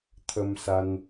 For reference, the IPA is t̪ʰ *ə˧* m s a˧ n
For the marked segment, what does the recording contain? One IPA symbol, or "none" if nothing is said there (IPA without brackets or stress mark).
ə˧